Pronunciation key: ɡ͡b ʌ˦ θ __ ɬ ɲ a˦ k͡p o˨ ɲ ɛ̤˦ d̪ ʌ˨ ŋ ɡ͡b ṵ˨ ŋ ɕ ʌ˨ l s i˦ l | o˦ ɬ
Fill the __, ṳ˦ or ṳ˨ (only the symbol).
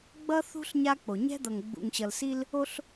ṳ˦